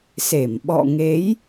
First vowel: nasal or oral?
oral